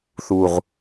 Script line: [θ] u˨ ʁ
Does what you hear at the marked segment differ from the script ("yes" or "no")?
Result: no